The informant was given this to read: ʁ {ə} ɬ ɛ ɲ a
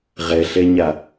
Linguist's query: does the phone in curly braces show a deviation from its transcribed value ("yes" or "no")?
yes